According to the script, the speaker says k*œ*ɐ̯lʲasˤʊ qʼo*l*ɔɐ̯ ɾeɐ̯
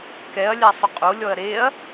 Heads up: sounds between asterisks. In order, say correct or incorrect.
incorrect: ɛ, incorrect: lʲ

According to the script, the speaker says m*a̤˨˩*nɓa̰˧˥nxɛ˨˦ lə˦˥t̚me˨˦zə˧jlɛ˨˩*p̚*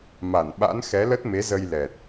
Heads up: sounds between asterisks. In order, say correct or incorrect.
incorrect: a˧˩, incorrect: t̚

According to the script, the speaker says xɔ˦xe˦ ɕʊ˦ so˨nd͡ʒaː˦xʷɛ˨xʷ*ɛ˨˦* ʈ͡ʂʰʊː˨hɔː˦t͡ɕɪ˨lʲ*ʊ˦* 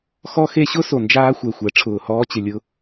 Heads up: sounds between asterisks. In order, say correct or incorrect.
correct, correct

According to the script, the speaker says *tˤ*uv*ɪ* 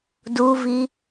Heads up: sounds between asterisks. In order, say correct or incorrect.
incorrect: d, incorrect: i

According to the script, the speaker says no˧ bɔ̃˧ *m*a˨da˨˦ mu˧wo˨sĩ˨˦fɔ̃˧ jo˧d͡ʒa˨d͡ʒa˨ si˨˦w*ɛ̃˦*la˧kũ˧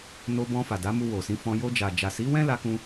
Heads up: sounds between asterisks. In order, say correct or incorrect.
incorrect: f, correct

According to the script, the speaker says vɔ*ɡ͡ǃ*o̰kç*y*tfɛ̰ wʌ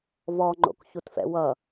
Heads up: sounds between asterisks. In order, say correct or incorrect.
incorrect: ŋ͡ǃ, incorrect: u

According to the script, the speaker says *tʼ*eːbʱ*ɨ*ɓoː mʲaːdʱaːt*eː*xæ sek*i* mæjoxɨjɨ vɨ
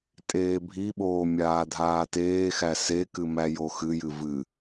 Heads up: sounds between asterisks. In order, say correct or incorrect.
correct, incorrect: i, correct, incorrect: ɨ

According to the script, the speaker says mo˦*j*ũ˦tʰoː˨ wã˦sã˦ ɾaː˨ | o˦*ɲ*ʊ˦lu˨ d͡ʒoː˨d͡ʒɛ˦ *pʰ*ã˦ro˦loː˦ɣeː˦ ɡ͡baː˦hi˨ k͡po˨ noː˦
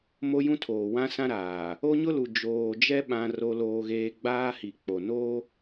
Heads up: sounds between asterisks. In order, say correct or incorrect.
correct, correct, incorrect: ɓ

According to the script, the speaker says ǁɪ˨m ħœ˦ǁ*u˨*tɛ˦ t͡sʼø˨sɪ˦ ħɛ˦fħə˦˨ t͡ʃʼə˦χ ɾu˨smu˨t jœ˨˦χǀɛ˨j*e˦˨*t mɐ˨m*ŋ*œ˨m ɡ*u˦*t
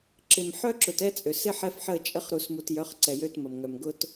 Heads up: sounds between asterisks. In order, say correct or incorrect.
incorrect: ʊ˨, incorrect: ø˦˨, correct, incorrect: ʊ˦

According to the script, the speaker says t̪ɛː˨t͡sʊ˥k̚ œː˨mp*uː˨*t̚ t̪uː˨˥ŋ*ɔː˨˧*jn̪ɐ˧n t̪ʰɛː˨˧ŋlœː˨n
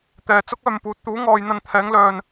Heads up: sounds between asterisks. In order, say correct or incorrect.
incorrect: uː˨˥, correct

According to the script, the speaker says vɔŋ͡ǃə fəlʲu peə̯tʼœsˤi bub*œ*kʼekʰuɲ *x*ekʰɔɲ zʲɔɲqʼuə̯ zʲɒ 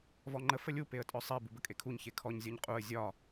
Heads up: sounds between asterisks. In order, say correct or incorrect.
incorrect: ə, incorrect: ç

